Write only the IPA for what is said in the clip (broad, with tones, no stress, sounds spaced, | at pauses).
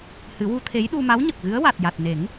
h ɨ˨˩˦ w u˧˥ t̪ʰ e˧˥ j ɗ u˧ m a˧˥ w ɲ ə˨˩ k̚ ɣ ɨ˧˥ ə̯ w a˨˩ t̚ j a˨˩ t̚ n e˨˩˦ ŋ